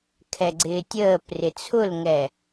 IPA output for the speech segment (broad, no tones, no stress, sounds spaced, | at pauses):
kʰ ɛ ɡ͡ǀ ɪː tʲ əː p r ɪ t͡sʰ ʊ l ŋ ɛ